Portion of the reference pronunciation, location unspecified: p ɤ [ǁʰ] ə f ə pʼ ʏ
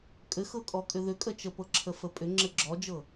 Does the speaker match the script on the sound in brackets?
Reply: yes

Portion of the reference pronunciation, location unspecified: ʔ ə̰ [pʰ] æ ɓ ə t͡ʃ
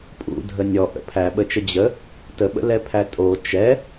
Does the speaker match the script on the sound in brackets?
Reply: yes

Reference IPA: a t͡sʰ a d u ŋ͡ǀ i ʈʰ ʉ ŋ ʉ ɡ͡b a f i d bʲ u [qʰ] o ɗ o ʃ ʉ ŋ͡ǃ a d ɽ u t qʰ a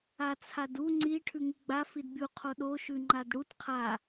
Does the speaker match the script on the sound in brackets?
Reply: yes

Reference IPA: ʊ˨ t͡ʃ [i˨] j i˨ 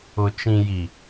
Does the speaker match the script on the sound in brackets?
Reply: no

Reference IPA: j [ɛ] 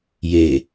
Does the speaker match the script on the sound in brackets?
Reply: no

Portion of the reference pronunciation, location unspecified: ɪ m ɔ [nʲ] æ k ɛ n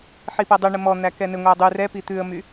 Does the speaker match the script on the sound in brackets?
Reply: no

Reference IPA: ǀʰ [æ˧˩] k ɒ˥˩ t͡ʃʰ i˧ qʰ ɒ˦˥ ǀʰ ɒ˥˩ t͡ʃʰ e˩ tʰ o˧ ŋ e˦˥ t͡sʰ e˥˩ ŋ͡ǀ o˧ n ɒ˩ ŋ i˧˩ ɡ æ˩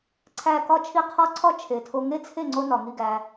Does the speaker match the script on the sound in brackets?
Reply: yes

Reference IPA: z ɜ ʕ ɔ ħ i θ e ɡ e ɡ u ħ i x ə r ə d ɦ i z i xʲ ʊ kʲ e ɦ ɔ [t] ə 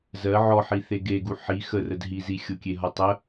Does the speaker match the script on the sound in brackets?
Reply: no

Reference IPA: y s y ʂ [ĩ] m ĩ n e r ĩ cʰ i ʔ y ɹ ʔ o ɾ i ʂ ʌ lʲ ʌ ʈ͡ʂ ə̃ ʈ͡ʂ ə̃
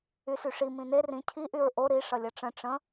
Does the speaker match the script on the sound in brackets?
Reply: no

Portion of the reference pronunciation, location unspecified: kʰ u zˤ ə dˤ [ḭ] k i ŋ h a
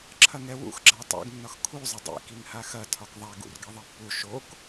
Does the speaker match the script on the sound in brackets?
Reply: yes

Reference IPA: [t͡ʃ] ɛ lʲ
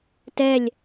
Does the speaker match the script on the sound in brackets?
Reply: no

